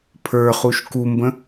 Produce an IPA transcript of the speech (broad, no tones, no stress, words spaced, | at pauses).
pʰə˞χuʃ kumbə̃